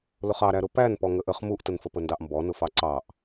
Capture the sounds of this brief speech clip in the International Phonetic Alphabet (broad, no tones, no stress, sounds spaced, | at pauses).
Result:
l ʊ χ ɑ ɾ æ ɾ ʊ p æ n p ɔ ŋ ə ʔ ə χ m u ʔ t ə n f ə p ə n d ɑ ʔ m b ɔ n ʊ f ɑ ǀ ɑ ʔ